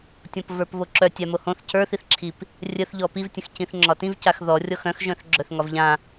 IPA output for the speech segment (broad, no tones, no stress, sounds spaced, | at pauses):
tʲ ɔ̃ p v ə˞ p β o ǁ œ tʲ a m o h õ θ c ə˞ θ i θ ǁʰ i p | rʲ ə θ ʎ ɔ p i v tʲ ə̃ x c ĩ θ ŋ͡ǁ ɒ t ĩ v c a x ð ɔ rʲ ɔ x œ̃ x ʒ œ̃ θ ɡ͡ǁ œ θ ŋ ɒ v ʎ ã